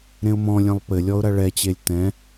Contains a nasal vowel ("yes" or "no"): yes